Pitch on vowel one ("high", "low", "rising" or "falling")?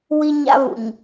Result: high